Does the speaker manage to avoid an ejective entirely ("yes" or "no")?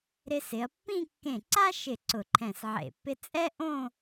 no